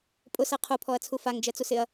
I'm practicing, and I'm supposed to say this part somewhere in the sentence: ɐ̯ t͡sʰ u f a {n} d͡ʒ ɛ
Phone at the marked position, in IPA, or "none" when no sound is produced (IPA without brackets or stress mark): ŋ